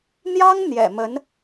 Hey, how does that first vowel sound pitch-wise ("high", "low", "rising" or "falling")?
high